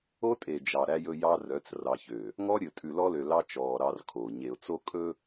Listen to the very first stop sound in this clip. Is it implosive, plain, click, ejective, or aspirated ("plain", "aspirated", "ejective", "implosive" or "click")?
ejective